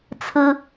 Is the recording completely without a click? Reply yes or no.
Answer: yes